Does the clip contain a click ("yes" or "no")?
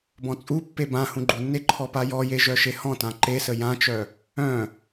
yes